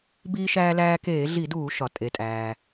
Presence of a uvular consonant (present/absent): absent